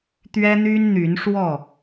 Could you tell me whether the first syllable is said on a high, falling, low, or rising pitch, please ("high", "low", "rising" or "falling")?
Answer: high